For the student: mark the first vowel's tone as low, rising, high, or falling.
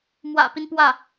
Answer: low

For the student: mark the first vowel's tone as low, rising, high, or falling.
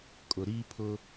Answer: low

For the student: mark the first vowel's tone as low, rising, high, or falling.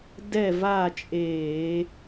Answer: falling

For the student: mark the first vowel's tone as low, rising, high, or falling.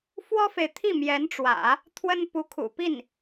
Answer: high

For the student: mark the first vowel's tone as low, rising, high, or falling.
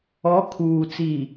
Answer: rising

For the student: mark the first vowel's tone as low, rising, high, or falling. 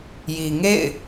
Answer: low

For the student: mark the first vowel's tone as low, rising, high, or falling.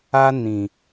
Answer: high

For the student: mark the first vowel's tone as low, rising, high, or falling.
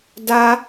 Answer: high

